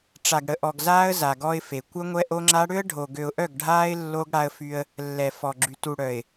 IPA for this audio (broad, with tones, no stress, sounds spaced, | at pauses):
ʈ͡ʂ a˨ ɡ ɽ ə˨ ʔ ɔ˨ ɡ z aː˦ ə̯ z a˨ ɡ ɔ˦ ɪ̯ f e˨ kʷ œ˦ ŋʷ ɛ˦ ʔ o˦ ŋ͡ǁ a˦ ɽ ø˦ ə̯ ɖʱ o˨ ɡ ø˨ ʊ̯ ʔ œ˦˨ ɡ ɖʱ aː˦ ɪ̯ lː o˦ ɡ ɽ a˦ ə̯ f y˦ ə̯ | lː ɛ˨ f ɔ˨ ɡ͡ǁ y˨ t u˨ ɽ œ˨ ɪ̯